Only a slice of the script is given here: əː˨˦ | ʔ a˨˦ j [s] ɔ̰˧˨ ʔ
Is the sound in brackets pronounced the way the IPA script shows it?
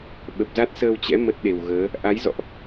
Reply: no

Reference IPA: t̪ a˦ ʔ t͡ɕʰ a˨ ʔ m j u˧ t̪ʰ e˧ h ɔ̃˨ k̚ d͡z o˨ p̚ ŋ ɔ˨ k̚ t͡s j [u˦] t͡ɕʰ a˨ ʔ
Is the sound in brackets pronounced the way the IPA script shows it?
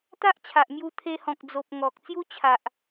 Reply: yes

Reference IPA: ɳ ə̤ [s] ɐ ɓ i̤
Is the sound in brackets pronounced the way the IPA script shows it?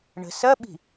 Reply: yes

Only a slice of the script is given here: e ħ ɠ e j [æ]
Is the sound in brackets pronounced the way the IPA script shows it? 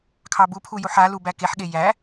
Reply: yes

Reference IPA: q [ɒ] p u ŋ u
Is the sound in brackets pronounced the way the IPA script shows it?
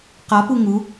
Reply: yes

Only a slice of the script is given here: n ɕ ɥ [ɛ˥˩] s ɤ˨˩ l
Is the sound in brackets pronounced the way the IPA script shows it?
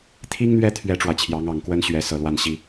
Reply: no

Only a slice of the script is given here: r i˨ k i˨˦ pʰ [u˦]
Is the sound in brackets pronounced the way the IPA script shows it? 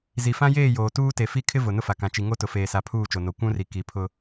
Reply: no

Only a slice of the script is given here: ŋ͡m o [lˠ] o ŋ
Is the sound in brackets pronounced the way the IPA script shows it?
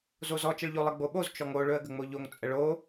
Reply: no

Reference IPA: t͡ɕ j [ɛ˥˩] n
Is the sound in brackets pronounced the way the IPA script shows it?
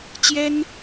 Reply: no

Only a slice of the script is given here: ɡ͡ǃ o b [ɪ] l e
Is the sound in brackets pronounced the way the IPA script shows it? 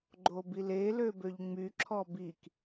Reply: no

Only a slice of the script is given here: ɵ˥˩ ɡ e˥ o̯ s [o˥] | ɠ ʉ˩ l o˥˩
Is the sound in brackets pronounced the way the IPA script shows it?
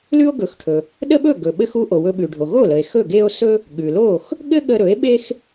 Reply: no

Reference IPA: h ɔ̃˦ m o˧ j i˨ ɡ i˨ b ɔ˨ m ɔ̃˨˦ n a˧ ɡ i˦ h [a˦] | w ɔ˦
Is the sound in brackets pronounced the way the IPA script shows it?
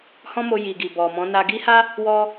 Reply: yes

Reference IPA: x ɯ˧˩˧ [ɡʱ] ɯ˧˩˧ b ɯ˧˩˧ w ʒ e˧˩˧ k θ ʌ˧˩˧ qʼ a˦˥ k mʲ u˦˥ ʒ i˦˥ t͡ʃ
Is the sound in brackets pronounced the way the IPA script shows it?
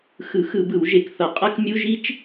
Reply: no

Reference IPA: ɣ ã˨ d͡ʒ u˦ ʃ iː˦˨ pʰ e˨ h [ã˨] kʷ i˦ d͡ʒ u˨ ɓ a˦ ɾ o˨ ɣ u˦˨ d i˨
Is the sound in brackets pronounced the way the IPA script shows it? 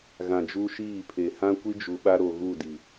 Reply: no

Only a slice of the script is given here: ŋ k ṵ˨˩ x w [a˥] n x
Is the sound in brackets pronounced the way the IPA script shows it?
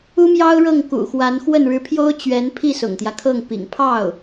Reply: no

